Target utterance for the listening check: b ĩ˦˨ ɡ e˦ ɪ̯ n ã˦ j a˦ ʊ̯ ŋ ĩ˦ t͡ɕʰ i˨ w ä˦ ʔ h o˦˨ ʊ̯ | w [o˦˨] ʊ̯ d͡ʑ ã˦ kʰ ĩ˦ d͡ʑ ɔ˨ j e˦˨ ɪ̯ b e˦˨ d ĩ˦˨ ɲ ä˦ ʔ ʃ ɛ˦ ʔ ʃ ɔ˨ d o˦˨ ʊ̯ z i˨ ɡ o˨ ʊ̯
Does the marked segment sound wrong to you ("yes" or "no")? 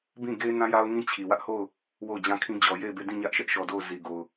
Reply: no